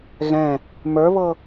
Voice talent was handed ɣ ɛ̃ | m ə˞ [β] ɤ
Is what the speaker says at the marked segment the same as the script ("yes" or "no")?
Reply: yes